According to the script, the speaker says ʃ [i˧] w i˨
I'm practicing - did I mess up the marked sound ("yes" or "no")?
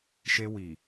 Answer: yes